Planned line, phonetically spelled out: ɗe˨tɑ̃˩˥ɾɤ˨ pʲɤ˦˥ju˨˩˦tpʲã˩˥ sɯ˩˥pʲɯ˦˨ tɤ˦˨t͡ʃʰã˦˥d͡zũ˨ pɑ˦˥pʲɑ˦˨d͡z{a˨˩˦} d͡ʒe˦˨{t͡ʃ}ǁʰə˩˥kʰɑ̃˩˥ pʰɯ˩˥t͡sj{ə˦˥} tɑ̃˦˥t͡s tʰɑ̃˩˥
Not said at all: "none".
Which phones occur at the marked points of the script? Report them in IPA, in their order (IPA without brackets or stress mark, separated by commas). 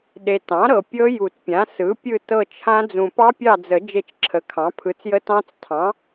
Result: ə˨˩˦, t͡ʃ, ə˦˥